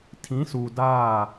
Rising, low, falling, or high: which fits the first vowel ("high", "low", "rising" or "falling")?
rising